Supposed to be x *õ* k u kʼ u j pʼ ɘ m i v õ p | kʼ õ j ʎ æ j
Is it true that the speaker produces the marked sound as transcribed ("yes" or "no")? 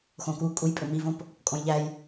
yes